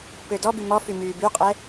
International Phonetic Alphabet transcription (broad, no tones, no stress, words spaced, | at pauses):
pødɔby mɔfy myːbyqʼɛ